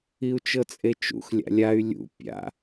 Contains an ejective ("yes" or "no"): yes